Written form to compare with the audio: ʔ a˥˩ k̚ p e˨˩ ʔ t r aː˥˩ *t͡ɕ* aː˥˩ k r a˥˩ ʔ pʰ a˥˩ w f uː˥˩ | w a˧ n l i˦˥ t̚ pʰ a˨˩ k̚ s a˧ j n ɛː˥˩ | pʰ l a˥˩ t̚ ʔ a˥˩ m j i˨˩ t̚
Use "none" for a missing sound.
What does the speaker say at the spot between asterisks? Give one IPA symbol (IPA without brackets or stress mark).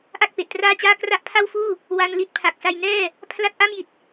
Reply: t͡ɕ